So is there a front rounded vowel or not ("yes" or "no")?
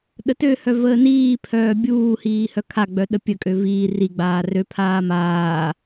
yes